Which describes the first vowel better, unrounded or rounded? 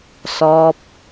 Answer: rounded